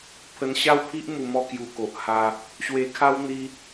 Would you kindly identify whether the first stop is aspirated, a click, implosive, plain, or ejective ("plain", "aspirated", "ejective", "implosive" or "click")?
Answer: aspirated